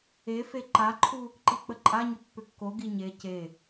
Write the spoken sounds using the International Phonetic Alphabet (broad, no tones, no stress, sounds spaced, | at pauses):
e f e ǃ a ǃʰ u | ǃ i k͡p ə ǃʼ a ɲ ʏ pː ʏ kː o ɡ i ɲ e c e